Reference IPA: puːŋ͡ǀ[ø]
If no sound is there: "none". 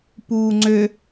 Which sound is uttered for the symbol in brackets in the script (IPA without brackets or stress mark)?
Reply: ø